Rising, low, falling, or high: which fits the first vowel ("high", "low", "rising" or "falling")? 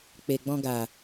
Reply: low